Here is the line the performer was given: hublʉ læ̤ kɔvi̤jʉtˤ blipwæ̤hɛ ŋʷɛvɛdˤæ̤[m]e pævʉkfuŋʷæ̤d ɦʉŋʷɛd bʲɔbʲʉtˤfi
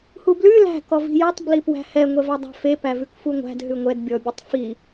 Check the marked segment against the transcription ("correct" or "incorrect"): incorrect